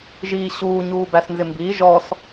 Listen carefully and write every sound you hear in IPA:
ʒ iː ɕ uː ɲ uː b æ s n z ɪ m b iː ʒ ɔ s

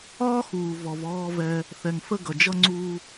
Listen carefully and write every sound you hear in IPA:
ɒː˦ x uː˨ v ɔ˨ v ɔː˦ v ɛ˦ | θ ɛ˨ ŋ f ə˦ ɡ ʌ˨ d͡ʒ ʌ˦ ŋ͡ǀ uː˦

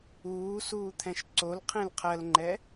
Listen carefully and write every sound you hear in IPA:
uː s uː t̪ʰ ɛ̃ ʃ ǀ o l qʰ ẽ l qʰ ɜ l ŋ͡ǃ ɛ

